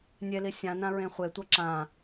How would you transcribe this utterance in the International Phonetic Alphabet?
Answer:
nʲ e l i sʲ ã n ã ɹ ẽ χʷ e tʷ ʌ ǁ ã

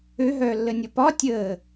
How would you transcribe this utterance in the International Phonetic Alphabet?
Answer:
ø ɦ œː lː ə nʲ ʌ p ɒ tʲ əː

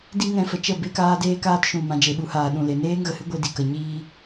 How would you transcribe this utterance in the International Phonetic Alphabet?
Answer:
d i˦ ŋ ɛ̃˧ f ə˨ t͡ʃ ə˦˨ b e˦ k aː˦ d eː˦ k aː˦ t ʃ ũ˨ m ã˨ d͡ʒ e˨ ɓ u˨˦ h aː˨ ɗ ũ˨ l e˨ n eː˦ ŋ ɣ ə˨ h ɨ˦ ɡʷ e˧ d i˨ k ə˨ ɲ iː˦

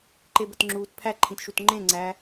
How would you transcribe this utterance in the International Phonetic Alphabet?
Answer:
ǃ e b ə t ŋ͡ǁ uː t pʰ æ ǃʰ ĩ t ʃ u t ŋ͡ǃ ẽ ŋ͡ǀ æ

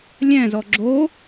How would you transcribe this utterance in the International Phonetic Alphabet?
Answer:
lʲ ɛ̃ z ɔ ɡ͡ǁ o

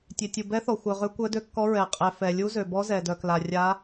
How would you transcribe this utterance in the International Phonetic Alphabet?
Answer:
tʲ ø˩ tʲ u˩ b ɛ˧˥ θ ɔ˩ xʷ œ˩ ʁ ø˧˥ kʷ œ˧˥ d ø˧˥ kː ɔ˧˥ ɹ ɛ˩ qʼ ɛ˩ f ɛ˩ lʲ u˧˥ z ø˩ b ɔ˧˥ z ɛ˩ d œ˩ k l a˩ rʲ a˧˥

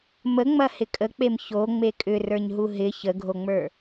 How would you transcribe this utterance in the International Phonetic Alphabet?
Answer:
m ə ŋ͡m ɐ h ɪ kʼ ə k͡p e m ç o ŋ͡m e kʼ ʏ r ə˞ ɲ ɦ u ɦ ɪ ç ə ɡʱ o ŋ͡m ə˞

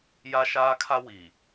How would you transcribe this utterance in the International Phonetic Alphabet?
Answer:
j a˦ ʃ aː˦ kʰ a˦ w i˨

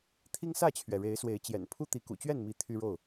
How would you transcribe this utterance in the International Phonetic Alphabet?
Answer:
t̪ʰ i˦ ŋ s ä˥˨ t͡ɕʰ ɥ ɛ˩ ɻ e˨˦ ɪ̯ s w e˨˦ ɪ̯ t͡ɕ j ɛ̰˨˩ n pʰ u˦ t̪ i˨˦ k ṵ˨˩ t͡ɕ ɥ ɛ˥˨ n m i˨˦ t̪ʰ y˦ ɻ o˥˨ ʊ̯

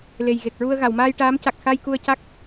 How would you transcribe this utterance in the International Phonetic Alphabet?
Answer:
l e˨˩ j ɣ e˨˩ k̚ ɹ u˧ ə̯ ɣ a˨˩˨ w m aː˧ j ʈ aː˧˥ m c a˨˩ k̚ x a˧ j k u˧ ə̯ c a˦˥ k̚

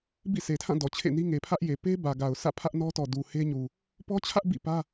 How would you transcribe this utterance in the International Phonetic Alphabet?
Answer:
b ḭ˦˨ sʰ e˨ tʰ ã˦˨ d ɔ˨ t͡ɕʰ ḛ˦˨ n i˦ ŋ e˨ pʰ ä˦ ʔ j e˨ p e˦ b ä˨ ɡ a˨ ʊ̯ sʰ ä̰˦˨ pʰ ä˦ ʔ n ɔ˦ t ɔ˨ d u˨ h e˦ ɲ u˨ | p ɔ˦ t͡ɕʰ ä˦ ʔ b ḭ˦˨ p ä˦

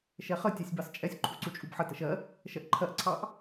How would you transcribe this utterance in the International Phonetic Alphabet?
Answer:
ʃ ɛ χ ə tʲ ɑ sʲ b ɑ s t͡ʃʼ ɛ sʲ ǃʰ u ǀ u t͡ʃʼ u b ħ ə t ə ʃ ɜ | ʃ ɜ ʔ ǃʰ ɜ ʔ ǀʰ ɑ ʔ

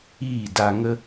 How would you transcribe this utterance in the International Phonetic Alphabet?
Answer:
iː˦˨ d a˧ ŋ ə˦

